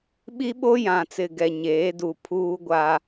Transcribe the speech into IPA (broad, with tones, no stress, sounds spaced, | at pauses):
ɓ i˦ ɓ o˦ j ã˨ t͡s ɪ˨ ɡ ɛ˨ ɲ eː˨˦ d u˨ pʰ uː˦ ɡʷ a˦